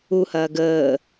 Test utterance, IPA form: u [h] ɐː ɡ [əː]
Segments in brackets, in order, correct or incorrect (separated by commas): correct, correct